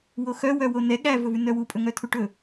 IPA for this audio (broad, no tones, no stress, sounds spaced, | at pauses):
w o x œ w œ w o n ɛ ɠ æ v ɵ v ʉ n œ w u pʼ ɵ ŋ œ tʰ u ʈ ɵ